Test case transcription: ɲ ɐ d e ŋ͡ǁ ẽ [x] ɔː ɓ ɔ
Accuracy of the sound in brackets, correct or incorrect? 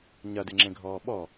incorrect